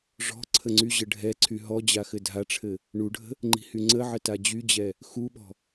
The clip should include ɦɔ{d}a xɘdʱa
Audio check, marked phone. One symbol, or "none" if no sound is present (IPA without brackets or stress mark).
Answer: d͡ʑ